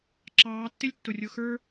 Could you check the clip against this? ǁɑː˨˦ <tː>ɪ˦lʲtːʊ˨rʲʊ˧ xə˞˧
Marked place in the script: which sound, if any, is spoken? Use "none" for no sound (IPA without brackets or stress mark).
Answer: tː